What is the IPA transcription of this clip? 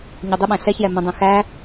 ɲʊdˤɪɓæ̃ ɬɛçjɛ mə̃dˤɛ̃ xæ

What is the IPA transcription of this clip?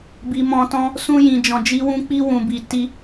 bi˧ mɔ̃˧ tɔ̃˦ | sũ˦jĩ˧d͡ʒɔ̃˧ d͡ʒi˧wũ˧ k͡pi˦ wũ˧bi˧ ti˧

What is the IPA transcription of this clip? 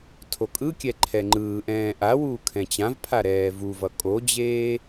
tʰokʼɯkʲɛ ǃʰɛŋ͡ǃɯːʔɛ̃ː ʔawuː kʰɛ̃t͡ɕãvpʰa ɾɛːvuvʌ kʼod͡ʑeː

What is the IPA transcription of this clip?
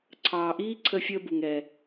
ǀʰɑː˧ʔiː˥ ǀʰə˥fʲəː˥bu˧ŋɾɛ˧

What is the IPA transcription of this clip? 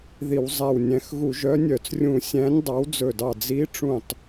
ði˧˩˧wzˤæ˧˩wnʲæ̃˨˥x ɣu˧˩˧ʒœ˨˥nʲœ˧˩˧t͡srʲũ˧˩˧ sʲæ̃˨˥nʲdˤɑ˨˥wd͡zɵ˧˩dɑ˧˩ d͡zi˨˥ʈ͡ʂũ˧˩tˤ

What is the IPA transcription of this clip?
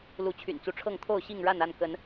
lu˨˦t͡ɕʰy̰˨˩nt͡su˨˦ʈ͡ʂʰɤ˥˨ŋ t̪ʰo˥˨ʊ̯ɕi˥˨ŋɻa˥˨na˥˨n kə˨˦n

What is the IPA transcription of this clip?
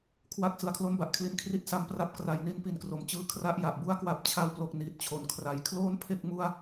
kʰwa˦˥k̚ sɯ˩˦a̯kʰlo˥˩nba˨˩ʔkʰli˧n kʰri˥˩t̚sa˦˥mpra˥˩p̚ kra˩˦jni˦˥n pi˨˩nkro˩˦mt͡ɕɯː˦˥ kʰra˦˥ʔja˨˩ʔ bu˥˩a̯kwa˦˥p̚ t͡ɕʰa˧wplo˨˩k̚ niː˨˩t̚t͡ɕʰo˩˦nkʰra˩˦j kʰloː˥˩npʰe˥˩k̚ mu˥˩a̯

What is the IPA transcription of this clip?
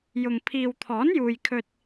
jʊ˨ŋ pʰiː˨wt̪ʰɔː˨˥njuː˨jkʰɵ˧t̚

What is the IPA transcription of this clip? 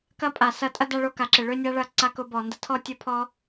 kɐ˦pʼa˨sɐ˧ tʼɐ˦da˧ɭo˧ ka˨ǁɪ˨ ɭø˦nʲa˦ɭɐ˦˨ ǀa˧kʊ˧bɔ˨ndɐ˧ tʰɔ˦tʲʊ˦pʰɔ˦

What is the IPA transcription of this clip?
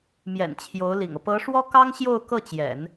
mjɛ̰˨˩nt͡ɕʰjo˧˥ʊ̯lḭ˨˩ŋɤ˦ pɤ˧˥ʂwɔ˥kɑ˥ŋɕjo˥˧ʊ̯ kɤ˥˩t͡ɕjɛ̰˨˩˦n

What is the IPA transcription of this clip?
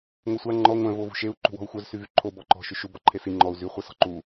ŋʷɛsʷa ŋ͡ǃɔ ŋʷɛ̃v ovṳʃeu̯ ǃṳwɔ̤u̯xʷœz syvyǃʰo bɔǃɔ̤ ʃyʃu bɔǃʰesi ŋ͡ǃɔu̯ zy χʷɛsɔ̤ǃu

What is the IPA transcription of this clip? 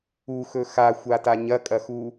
uxɵ xaxʷata ɲɐkʼɐxu

